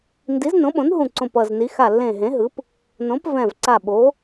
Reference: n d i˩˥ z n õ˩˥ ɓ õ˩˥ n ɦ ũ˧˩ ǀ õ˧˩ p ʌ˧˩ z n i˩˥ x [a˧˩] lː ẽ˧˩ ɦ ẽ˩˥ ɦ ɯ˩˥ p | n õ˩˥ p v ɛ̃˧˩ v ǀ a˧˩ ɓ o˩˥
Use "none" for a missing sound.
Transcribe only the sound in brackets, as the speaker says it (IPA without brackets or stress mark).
a˧˩